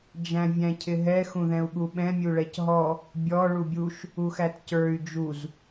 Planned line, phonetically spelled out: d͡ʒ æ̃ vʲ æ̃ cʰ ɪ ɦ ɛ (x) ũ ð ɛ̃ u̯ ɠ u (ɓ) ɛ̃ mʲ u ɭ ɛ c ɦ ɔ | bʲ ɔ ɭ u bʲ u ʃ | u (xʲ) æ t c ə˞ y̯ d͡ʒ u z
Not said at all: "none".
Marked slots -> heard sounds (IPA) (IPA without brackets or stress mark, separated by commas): x, ɓ, x